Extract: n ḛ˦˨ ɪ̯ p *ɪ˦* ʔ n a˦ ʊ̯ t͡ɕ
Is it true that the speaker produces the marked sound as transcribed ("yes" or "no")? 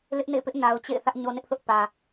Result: yes